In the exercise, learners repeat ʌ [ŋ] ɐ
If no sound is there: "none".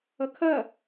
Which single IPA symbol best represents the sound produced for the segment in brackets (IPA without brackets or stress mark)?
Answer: kʰ